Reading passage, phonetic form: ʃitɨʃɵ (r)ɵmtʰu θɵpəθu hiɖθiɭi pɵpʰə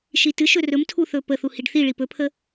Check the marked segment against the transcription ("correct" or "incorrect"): correct